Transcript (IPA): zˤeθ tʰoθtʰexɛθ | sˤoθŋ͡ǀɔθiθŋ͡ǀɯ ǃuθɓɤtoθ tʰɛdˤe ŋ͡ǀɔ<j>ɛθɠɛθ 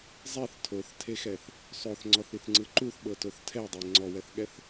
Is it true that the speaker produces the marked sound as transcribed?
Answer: no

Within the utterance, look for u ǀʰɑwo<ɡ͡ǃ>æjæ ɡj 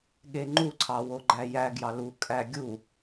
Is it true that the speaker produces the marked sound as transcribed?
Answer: yes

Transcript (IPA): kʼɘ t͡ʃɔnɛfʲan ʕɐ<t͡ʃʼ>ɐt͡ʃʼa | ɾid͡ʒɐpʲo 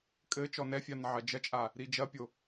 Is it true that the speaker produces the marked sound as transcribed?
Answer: no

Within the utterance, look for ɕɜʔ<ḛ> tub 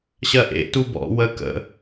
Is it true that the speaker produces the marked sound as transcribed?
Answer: yes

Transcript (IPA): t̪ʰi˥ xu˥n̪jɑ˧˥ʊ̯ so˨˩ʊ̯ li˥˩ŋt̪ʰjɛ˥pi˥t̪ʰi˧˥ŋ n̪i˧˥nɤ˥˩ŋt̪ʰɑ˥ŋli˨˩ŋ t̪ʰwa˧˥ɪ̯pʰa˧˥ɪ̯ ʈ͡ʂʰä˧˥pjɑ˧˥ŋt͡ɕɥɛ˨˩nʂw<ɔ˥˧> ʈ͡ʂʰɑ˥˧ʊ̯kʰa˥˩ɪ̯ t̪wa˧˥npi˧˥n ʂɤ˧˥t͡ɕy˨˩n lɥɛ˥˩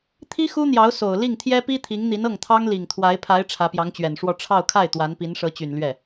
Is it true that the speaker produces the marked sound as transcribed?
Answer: yes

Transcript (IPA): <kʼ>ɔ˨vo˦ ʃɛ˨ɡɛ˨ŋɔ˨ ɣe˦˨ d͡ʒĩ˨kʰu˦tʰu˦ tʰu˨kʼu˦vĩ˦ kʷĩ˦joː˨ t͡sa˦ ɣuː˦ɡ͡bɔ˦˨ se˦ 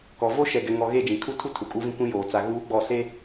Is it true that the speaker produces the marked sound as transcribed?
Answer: no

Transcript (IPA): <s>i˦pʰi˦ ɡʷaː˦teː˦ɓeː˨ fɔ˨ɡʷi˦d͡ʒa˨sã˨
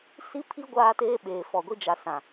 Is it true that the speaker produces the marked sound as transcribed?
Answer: yes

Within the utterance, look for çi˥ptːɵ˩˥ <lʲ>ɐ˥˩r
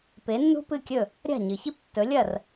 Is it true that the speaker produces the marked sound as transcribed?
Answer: yes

